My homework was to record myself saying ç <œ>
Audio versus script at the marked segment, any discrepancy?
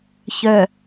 no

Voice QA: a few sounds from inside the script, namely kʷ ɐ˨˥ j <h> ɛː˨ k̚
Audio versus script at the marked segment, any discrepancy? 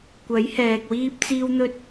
no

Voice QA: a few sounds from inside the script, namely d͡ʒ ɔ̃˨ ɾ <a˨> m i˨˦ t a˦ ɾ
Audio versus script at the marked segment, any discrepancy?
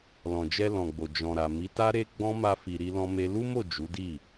no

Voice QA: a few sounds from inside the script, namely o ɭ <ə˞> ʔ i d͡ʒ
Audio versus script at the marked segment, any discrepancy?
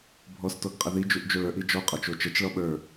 no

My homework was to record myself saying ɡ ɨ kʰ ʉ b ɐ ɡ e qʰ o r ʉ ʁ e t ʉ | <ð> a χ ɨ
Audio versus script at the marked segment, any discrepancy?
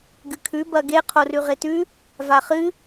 yes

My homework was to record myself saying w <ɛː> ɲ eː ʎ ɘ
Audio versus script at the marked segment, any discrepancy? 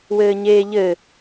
yes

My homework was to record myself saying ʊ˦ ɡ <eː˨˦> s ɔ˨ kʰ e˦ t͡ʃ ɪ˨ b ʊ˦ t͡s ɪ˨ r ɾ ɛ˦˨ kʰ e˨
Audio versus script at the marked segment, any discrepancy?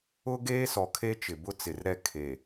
yes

